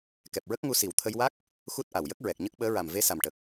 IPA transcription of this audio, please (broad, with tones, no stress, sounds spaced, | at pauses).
k ɛ˨˩ p̚ ɹ ə˦˥ k̚ ŋ u˧ s i˨˩ w t̪ʰ ə˧ j w a˦˥ k̚ | x u˦˥ t̚ ʔ a˨˩ w j ə˦˥ k̚ ɹ ɛ˨˩ k̚ ɲ ə˦˥ k̚ ɓ əː˧˥ ɹ a˨˩ m v e˧ s a˨˩ m ʈ ə˨˩ k̚